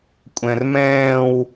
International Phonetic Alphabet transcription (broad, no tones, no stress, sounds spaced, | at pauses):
kʷʼ ɛ̃ r m ɛ̃ː w